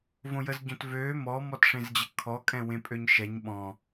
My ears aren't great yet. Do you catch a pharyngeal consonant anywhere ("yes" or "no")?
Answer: no